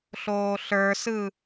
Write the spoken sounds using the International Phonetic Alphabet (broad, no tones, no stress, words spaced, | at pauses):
ɬoːɬə˞sɯ